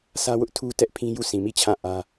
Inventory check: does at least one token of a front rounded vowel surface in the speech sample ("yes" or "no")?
no